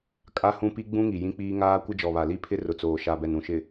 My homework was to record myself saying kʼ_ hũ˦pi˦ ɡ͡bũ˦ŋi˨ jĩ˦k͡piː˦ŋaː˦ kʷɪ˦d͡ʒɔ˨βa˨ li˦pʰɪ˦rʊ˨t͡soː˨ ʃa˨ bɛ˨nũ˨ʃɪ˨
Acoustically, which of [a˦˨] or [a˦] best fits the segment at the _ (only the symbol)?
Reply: a˦